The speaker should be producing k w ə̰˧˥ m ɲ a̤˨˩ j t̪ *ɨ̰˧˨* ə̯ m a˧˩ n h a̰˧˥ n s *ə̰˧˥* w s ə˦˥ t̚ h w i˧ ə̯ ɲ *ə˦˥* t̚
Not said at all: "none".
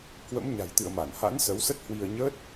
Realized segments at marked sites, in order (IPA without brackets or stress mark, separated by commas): ɨ̰˧˨, ə˨˦, əː˦˥